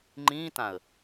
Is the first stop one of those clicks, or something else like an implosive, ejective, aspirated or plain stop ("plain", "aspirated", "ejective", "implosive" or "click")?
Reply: click